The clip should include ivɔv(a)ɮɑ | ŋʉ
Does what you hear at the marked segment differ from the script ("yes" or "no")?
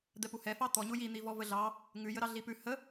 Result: yes